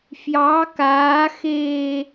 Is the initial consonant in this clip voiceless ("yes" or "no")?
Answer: yes